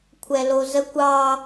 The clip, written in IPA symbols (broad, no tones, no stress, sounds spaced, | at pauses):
kʷʰ ɛ l o z ə kʷ ɑ